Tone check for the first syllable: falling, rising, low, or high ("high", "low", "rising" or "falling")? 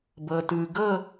low